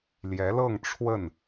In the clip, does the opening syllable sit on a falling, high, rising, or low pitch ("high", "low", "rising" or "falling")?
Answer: rising